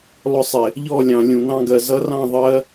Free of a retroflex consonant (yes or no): yes